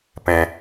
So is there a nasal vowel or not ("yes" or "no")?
yes